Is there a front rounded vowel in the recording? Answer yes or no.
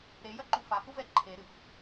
no